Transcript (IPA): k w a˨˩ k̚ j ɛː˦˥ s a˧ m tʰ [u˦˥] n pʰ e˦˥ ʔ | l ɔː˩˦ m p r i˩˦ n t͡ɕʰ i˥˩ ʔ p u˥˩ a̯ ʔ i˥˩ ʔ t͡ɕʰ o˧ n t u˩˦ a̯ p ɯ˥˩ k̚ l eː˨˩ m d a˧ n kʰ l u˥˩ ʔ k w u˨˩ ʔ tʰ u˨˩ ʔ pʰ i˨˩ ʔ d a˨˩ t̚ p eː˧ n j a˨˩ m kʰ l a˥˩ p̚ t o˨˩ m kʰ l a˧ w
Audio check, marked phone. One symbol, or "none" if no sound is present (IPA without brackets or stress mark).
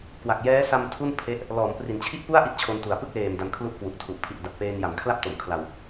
u˥˩